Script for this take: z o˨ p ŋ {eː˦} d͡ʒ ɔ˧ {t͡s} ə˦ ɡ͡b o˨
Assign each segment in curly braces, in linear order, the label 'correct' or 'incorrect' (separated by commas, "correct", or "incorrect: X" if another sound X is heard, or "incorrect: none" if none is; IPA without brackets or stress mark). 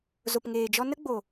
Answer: incorrect: eː˨, incorrect: n